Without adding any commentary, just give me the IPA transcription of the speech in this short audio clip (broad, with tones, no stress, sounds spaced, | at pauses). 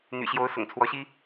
n̪ y̰˨˩ ɕ j o˧˥ ʊ̯ s ʊ̰˨˩ ŋ t͡sʰ w ɔ˧˥ ɕ i˥